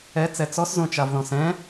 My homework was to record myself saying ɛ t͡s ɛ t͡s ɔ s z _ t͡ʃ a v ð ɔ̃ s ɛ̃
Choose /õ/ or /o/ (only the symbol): õ